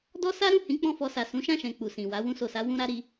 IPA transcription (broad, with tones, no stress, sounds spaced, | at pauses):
d ɔ˦ s a˦ ɾ ũ˦˨ h ĩ˨˦ k͡p ɔ̃˦˨ f ɔ˧ s a˨ s ũ˨˦ ʃ ã˦˨ ʃ ɛ̃˨ k͡p u˨ s ĩ˨ w a˨˦ w ũ˧ s o˨ s a˨˦ w ũ˦ ɾ a˦ ɾ i˧